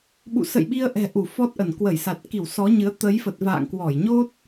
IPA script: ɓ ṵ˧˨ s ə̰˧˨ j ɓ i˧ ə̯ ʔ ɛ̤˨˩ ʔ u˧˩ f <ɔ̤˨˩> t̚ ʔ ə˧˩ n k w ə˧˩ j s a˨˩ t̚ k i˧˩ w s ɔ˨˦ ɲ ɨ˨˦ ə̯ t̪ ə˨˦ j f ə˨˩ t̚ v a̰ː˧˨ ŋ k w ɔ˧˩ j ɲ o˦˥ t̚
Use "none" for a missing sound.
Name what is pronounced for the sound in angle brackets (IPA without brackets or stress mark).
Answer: ɔ˦˥